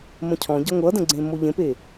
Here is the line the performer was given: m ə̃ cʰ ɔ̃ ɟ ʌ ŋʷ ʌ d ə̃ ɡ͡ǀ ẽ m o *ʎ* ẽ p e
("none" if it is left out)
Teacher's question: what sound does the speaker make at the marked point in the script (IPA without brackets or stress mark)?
ʎ